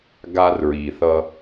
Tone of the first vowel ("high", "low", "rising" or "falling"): high